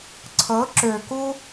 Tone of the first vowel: rising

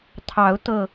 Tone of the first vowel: rising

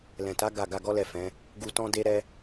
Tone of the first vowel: low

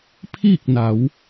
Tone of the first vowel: falling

